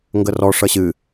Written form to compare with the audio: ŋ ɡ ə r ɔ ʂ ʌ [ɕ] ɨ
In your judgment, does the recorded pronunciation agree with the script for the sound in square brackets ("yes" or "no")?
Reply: yes